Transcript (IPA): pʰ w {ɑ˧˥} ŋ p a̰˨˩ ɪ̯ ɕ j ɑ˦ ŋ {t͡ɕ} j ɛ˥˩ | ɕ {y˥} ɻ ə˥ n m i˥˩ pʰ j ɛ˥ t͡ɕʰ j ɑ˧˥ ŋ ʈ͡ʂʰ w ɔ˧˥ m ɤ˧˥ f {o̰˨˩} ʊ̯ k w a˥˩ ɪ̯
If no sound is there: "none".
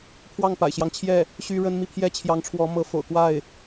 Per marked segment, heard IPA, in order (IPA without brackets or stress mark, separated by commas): ɑ˥˩, t͡ɕʰ, y˥, o̰˨˩